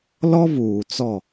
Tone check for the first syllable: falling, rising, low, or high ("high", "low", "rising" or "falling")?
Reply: high